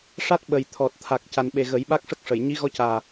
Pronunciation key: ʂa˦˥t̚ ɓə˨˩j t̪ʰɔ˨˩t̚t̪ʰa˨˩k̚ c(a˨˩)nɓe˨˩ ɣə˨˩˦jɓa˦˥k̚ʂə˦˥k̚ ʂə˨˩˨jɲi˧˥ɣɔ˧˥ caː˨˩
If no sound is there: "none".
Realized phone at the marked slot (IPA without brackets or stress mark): a˨˩